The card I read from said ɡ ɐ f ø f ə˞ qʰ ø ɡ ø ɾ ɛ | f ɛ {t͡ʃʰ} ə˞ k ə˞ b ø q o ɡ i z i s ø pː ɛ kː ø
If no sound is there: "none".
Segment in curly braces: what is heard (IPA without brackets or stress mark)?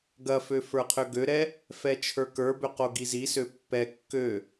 t͡ʃʰ